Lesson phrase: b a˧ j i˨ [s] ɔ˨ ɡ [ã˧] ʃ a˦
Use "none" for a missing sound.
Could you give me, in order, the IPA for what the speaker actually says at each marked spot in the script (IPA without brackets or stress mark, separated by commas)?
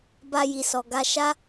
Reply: s, a˧